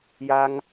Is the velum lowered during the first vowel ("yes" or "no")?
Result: no